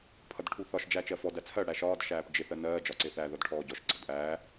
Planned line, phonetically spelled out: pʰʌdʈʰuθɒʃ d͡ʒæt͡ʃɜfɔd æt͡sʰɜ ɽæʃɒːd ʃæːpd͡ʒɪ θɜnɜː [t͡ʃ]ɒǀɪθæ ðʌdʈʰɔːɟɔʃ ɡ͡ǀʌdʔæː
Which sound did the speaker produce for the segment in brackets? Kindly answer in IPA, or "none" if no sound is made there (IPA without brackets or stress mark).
d͡ʒ